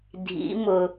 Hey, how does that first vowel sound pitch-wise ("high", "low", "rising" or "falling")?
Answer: rising